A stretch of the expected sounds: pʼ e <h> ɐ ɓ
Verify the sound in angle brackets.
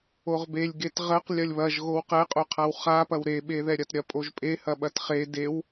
correct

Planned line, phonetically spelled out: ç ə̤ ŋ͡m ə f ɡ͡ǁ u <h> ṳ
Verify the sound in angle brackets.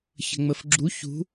incorrect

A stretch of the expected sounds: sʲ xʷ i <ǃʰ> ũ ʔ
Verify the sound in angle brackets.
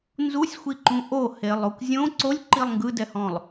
incorrect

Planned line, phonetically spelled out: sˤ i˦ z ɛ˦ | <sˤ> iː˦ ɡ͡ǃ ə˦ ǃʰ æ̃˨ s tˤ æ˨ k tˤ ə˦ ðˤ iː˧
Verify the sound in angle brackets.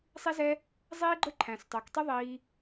incorrect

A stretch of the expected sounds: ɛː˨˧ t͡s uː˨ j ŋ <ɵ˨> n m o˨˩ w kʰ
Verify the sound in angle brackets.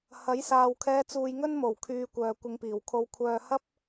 incorrect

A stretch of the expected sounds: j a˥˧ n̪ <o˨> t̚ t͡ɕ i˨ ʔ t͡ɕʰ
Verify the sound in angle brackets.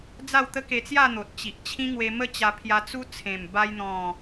correct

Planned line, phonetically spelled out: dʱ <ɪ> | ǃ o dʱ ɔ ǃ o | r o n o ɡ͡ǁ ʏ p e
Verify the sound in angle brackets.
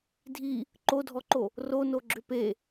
incorrect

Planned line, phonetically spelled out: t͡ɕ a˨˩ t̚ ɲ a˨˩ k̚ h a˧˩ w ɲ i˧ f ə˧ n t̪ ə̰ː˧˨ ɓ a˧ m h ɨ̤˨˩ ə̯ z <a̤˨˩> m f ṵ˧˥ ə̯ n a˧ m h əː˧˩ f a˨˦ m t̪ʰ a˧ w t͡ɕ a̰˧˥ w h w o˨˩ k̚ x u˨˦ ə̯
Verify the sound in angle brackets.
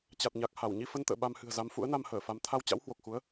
incorrect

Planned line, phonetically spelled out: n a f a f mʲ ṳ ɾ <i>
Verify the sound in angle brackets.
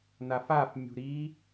correct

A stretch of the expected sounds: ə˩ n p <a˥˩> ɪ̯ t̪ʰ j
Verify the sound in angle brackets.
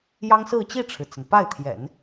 correct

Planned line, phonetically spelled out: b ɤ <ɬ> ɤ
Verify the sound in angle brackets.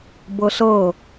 correct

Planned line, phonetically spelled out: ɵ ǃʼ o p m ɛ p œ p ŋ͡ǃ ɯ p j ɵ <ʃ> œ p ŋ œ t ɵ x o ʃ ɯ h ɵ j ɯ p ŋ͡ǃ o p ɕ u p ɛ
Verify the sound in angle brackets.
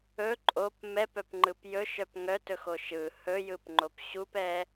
correct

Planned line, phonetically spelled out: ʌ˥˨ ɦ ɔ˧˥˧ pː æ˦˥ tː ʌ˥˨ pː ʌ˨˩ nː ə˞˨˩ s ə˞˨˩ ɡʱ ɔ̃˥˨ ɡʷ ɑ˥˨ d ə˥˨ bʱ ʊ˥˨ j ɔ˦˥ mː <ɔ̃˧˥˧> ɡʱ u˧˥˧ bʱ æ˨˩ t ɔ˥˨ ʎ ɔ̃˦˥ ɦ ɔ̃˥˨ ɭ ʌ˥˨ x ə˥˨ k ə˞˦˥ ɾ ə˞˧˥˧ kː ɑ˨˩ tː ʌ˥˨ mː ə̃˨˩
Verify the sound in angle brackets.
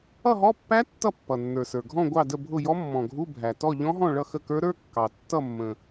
incorrect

